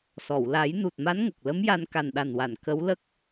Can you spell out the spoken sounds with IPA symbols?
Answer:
s ɔ˨˩˨ w l a˨˩˦ j n u˨˩ t̚ m a˧˥ n ŋ ə˨˩ k̚ l ə˧˥ m j a˧ n k a˨˩ n ɗ a˨˩ n w a˨˩˨ n k ə˧˥ w l ə˦˥ k̚

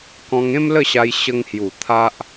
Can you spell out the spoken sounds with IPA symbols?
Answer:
k ɔ̃˧ ŋ ẽ˦ m l ə˥˧ ɕ a˧ j ɕ ə˧ ŋ h j u˨˩ t̪ʰ a˦ ʔ

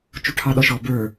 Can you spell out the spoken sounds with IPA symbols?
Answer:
t͡ʃ u ʈʰ ɑ ɗ ɔ ʃ ɔ b ə˞

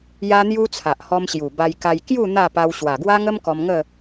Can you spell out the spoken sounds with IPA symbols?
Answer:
j a˦ n̪ j u˦ t͡sʰ a˨ ʔ h ɔ˧ m ɕ j u˨˩ b a˧ j k a˧ j k j u˥˧ n̪ a˥˧ p a˧ w ɕ w a˨˩ ɡ w a˦ ŋ ə˦ m k ɔ˧ m ŋ ə˥˧

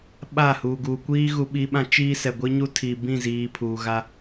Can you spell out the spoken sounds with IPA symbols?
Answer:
ɓ a˦˨ h uː˨ ɡ uː˨ kʷ iː˦ ɣ u˦ ɓ i˦ ɓ ã˦ t͡ʃ iː˦ s ɛ˨ ɡʷ i˦ ɲ u˦ tʰ iː˨ b ĩ˦˨ z iː˨ pʰ uː˨ ɣ a˦

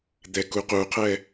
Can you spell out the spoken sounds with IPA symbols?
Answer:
d̪ ɛ k u q u qʰ ɛ

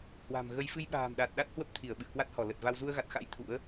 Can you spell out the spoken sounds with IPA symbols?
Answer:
h w a̤˨˩ m ɣ ə˧ j f ɨ˧ j ɓ a̤ː˨˩ m ɗ a˨˩ t̚ ɗ a˦˥ t̚ h w ə˦˥ p̚ t̪ʰ i˧˩ ə̯ ɓ ɨ̰˧˨ ə̯ k w a˦˥ t̚ h ɔ˧˩ l ə˨˩ t̚ v a˧ w z u˧ ə̯ ɣ a˨˩ t̚ x a̰˧˥ j t̪ʰ ṵ˧˥ ə̯

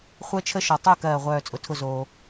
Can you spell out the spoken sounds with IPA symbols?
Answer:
χʷ ɜ˥ t͡ʃʰ ə˥ ʃ ɔ˨ tˤ ʊ˦˨ k ɜː˦˨ ʁʷ œː˦˨ t͡sʼ ʊ˨ tʰ ʊ˦˨ z oː˨

